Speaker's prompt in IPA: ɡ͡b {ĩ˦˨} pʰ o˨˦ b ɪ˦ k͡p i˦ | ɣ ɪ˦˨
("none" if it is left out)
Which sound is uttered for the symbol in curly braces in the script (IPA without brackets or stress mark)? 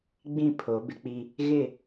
ĩ˦˨